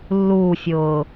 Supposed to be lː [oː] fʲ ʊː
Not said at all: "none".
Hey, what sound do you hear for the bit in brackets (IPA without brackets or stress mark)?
uː